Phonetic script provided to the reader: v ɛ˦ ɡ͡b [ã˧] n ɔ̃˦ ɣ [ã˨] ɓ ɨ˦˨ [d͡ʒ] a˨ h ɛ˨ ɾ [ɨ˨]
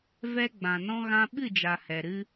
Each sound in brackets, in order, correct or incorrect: incorrect: ã˨, incorrect: ã˦, correct, incorrect: ɨ˧

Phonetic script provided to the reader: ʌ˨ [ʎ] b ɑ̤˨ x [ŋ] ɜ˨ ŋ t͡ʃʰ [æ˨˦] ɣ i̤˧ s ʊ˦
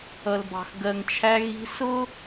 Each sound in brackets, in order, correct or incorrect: incorrect: l, incorrect: ɡ, incorrect: æ˧

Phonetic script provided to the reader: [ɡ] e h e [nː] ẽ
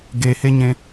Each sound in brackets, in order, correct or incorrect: correct, incorrect: ɲ

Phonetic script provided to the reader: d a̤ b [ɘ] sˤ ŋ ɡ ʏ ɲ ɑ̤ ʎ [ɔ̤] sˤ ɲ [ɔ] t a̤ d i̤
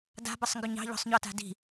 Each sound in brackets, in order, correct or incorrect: correct, correct, correct

